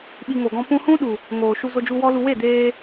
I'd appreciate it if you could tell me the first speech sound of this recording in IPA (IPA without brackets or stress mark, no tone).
ɓ